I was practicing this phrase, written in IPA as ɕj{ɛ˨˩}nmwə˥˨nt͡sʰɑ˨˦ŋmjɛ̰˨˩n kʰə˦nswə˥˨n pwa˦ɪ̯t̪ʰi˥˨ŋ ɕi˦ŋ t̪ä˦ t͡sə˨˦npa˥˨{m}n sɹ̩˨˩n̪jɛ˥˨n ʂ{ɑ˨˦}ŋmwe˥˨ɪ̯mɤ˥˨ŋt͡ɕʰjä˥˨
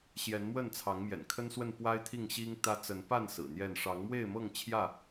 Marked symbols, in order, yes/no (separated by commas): no, no, yes